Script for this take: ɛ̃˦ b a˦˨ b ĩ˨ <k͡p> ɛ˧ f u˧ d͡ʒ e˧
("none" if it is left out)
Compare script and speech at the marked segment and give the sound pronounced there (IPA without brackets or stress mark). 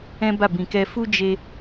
k